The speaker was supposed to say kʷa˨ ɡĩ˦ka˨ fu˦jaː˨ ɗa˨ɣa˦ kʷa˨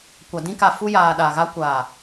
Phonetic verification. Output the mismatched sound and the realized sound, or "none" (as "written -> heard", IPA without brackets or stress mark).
ɡ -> d